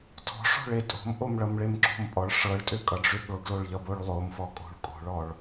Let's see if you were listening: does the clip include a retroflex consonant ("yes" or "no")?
yes